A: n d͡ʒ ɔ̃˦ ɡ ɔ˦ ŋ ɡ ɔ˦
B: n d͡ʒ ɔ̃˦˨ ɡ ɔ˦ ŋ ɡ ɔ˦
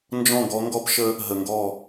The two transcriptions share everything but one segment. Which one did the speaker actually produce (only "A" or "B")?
B